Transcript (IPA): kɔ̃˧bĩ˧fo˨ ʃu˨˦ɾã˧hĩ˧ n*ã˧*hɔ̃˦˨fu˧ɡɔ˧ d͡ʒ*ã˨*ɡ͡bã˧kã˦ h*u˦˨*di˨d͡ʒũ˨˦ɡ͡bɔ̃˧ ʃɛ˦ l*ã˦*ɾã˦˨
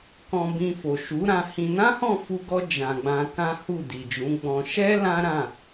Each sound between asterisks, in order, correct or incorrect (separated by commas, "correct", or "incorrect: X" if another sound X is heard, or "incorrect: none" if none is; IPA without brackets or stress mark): incorrect: ã˦, correct, correct, correct